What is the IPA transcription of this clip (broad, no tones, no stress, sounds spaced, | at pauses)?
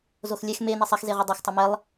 z o x lʲ ɛ x m e n e sˤ ɛ x z e ʁ u dˤ ɛ x tˤ ɨ m ɛ lˠ